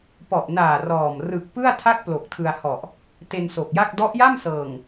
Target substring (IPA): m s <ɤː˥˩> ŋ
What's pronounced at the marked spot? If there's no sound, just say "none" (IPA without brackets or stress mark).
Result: ɤː˨˩